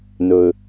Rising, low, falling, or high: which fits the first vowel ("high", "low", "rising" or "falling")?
low